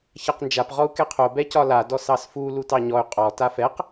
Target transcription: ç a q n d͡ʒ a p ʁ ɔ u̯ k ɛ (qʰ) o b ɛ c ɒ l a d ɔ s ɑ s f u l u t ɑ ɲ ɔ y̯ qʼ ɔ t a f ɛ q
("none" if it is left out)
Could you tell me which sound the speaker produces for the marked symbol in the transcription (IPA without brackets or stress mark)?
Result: qʰ